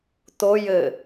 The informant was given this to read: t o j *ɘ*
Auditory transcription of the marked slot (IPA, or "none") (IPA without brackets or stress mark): ɘ